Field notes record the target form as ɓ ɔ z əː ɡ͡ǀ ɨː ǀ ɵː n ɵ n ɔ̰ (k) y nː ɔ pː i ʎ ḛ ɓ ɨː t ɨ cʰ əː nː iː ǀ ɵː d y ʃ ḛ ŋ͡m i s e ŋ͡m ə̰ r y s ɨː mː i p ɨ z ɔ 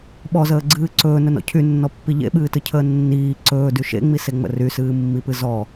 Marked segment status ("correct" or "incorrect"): incorrect